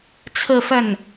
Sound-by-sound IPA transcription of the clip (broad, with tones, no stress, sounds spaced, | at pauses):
t͡sʰ ɹ̩˥˧ f ə˥˩ n